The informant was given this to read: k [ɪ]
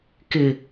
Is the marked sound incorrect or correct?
correct